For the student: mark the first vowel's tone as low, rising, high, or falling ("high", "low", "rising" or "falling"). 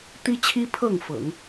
high